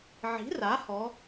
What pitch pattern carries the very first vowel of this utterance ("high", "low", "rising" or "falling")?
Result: rising